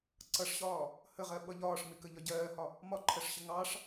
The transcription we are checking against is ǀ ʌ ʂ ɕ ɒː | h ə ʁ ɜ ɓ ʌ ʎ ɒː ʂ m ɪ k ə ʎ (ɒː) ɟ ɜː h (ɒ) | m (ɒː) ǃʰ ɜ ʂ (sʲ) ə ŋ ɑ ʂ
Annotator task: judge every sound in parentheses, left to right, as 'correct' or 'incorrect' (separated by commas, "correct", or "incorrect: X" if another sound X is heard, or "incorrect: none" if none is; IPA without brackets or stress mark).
incorrect: ɒ, correct, incorrect: ɒ, incorrect: ɕ